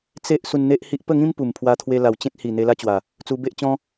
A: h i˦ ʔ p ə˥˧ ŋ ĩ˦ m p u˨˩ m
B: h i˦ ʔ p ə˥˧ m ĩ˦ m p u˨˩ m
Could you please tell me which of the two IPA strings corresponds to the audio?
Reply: A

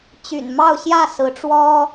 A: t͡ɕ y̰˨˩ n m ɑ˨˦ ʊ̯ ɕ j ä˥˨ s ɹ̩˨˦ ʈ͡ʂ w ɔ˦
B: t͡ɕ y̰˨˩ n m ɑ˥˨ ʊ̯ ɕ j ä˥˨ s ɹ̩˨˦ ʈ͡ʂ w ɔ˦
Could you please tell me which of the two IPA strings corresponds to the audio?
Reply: B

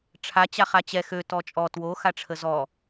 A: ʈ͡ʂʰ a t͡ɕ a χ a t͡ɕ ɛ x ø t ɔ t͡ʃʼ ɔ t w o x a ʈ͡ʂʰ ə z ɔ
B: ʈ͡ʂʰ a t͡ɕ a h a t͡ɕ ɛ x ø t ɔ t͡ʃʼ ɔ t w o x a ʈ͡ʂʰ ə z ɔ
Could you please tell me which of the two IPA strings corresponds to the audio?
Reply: A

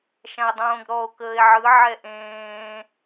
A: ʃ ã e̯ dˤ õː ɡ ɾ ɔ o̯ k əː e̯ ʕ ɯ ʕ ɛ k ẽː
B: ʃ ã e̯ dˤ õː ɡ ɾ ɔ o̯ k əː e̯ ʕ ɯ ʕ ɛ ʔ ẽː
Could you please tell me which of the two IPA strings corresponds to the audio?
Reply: B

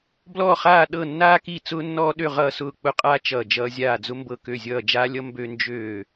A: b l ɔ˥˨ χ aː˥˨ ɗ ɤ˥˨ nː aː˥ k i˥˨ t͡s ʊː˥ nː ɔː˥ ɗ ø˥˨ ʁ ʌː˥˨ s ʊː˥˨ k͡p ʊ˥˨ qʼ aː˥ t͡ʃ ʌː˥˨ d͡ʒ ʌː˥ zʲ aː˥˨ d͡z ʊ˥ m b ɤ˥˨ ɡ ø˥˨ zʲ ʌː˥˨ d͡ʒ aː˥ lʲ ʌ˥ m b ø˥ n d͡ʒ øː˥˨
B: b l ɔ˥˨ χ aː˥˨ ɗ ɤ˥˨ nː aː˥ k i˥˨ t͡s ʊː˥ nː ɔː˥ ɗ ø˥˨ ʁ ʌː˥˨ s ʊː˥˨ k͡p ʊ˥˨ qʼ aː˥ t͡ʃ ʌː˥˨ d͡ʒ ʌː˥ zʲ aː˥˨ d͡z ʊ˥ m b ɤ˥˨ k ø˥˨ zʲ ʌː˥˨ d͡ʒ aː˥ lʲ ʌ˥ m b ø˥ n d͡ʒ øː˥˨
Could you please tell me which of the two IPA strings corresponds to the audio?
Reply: B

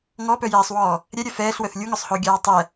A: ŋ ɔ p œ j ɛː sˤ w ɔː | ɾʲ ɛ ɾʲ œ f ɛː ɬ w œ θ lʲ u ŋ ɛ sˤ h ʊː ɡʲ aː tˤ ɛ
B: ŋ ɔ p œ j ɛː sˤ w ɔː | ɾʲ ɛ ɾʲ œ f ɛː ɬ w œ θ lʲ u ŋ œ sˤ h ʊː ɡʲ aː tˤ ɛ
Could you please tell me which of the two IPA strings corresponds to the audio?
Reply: B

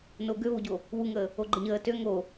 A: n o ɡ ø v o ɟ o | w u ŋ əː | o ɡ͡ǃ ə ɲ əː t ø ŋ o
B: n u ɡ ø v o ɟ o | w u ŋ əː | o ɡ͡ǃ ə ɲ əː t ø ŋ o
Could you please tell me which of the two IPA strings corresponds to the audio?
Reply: A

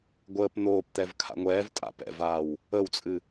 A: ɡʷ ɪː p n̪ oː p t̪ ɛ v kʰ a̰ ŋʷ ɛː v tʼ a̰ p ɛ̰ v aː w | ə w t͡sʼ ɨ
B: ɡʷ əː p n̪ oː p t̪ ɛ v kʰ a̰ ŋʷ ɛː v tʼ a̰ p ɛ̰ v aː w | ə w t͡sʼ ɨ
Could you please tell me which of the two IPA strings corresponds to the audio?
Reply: B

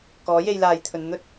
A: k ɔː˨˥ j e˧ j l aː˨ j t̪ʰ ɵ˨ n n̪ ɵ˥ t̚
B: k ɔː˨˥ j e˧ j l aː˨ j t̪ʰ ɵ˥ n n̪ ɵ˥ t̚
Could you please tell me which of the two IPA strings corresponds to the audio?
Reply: A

